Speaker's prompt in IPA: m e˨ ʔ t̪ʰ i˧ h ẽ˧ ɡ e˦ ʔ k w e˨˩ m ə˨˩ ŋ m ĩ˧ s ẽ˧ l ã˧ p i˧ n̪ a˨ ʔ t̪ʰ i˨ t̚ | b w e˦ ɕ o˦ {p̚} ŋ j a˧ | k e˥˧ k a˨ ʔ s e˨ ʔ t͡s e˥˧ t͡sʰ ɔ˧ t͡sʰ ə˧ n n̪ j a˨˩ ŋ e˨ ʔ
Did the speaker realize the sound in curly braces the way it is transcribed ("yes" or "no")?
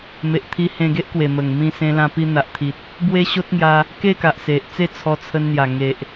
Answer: no